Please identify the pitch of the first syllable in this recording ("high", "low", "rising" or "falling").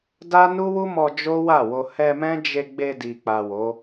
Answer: high